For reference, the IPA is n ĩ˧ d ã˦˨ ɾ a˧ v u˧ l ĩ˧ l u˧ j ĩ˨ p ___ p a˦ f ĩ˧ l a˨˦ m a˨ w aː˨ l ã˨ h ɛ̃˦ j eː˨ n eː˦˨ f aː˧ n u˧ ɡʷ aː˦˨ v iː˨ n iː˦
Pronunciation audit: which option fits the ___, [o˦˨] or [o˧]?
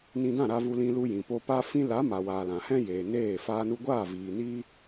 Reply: o˧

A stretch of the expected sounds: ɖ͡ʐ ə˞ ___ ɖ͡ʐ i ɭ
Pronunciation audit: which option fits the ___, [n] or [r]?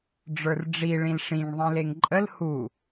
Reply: r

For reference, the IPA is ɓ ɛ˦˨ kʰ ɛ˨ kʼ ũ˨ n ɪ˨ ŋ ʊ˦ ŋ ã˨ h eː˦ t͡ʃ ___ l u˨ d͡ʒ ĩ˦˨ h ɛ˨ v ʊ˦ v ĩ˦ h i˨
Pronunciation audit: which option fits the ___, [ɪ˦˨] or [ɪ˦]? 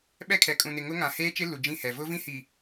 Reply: ɪ˦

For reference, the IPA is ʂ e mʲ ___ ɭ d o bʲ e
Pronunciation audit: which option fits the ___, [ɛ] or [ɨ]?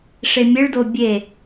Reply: ɨ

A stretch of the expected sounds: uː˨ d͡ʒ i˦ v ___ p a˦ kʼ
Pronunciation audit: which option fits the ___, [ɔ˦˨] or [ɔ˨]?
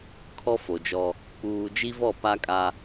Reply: ɔ˦˨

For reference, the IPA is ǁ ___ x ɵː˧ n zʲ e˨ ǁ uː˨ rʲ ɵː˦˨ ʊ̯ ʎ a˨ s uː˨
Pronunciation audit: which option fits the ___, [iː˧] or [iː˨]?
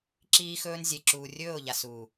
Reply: iː˧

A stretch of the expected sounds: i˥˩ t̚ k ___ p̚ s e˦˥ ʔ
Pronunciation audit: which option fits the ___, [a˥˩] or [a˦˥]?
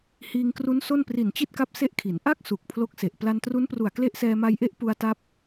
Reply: a˦˥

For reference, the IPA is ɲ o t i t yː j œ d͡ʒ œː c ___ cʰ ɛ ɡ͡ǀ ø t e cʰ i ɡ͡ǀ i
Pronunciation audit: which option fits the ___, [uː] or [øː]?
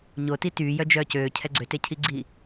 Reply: øː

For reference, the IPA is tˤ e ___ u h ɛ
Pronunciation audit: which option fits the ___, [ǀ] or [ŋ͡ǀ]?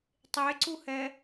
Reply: ǀ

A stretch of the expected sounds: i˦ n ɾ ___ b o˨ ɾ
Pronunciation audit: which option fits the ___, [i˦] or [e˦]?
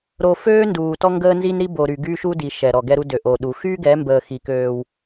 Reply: i˦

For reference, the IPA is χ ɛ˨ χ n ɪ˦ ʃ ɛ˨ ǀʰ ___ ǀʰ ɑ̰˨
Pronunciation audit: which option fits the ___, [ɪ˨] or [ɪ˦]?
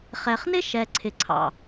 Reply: ɪ˨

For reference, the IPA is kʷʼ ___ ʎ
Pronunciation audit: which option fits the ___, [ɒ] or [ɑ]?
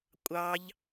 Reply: ɑ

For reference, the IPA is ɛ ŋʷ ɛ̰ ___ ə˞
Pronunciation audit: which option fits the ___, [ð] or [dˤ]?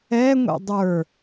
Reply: dˤ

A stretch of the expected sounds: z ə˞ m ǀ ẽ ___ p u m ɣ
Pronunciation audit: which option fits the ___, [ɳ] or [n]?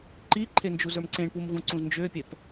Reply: ɳ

